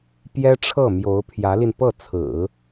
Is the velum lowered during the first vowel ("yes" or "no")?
no